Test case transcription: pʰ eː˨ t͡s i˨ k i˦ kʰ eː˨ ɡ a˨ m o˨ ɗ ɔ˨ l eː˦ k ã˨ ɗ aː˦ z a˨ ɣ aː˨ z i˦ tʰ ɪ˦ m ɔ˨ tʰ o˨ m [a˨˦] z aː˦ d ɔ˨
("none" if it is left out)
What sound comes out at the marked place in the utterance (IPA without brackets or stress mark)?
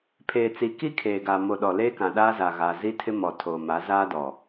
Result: a˨˦